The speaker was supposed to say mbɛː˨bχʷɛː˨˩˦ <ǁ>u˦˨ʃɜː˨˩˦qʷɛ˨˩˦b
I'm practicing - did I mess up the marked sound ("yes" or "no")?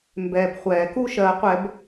yes